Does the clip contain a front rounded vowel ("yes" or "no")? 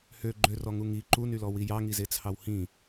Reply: yes